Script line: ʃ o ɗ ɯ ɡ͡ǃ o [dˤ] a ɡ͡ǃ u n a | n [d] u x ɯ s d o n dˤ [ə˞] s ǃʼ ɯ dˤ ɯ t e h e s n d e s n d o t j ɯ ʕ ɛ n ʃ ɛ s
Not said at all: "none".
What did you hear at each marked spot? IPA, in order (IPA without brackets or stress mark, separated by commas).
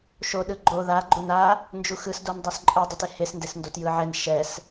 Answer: ð, d͡ʒ, ə˞